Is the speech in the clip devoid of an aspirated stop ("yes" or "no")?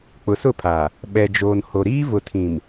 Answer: no